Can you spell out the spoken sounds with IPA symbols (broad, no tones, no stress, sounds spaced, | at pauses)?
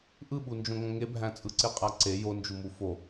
ʔ ɯ ɓ u n d͡ʒ õ ŋ õ ŋ e bʱ æ̃ t͡sʼ ɯ ǀ e qʼ æ ǀ e j o n d͡ʒ u m u f o